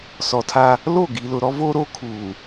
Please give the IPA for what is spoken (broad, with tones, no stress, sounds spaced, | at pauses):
s ɔ˨ tʰ a˦ | l o˦˨ ɡ i˨ l ʊ˨ ɾ ɔ˦ v oː˦ ɾ oː˦ kʰ uː˨